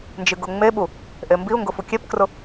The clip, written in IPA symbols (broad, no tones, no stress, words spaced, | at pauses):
nd͡ʒɨɡʊŋ͡meɓu | ʔembiʊ̯ŋɡʊ fukʲepkrʊ